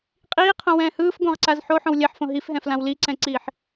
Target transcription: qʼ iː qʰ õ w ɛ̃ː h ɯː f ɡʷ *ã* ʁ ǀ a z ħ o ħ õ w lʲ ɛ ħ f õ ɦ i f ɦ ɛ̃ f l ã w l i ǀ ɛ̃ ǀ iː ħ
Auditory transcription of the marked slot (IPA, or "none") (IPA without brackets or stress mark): ã